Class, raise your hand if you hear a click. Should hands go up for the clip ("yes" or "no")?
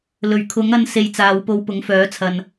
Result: no